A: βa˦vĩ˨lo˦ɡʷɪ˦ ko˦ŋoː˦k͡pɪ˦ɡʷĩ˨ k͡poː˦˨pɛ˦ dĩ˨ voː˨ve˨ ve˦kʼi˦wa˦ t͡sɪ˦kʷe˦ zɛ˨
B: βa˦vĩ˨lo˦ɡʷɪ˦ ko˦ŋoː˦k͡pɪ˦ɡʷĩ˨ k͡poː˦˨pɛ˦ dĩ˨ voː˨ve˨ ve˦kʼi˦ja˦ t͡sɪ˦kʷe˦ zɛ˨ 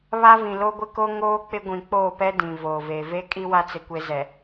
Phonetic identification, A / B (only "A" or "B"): A